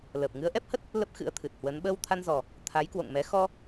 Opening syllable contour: low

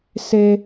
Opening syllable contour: high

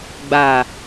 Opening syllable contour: low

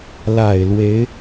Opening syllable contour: low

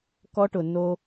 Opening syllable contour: high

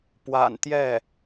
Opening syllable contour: low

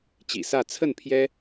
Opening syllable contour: low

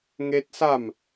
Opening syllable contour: high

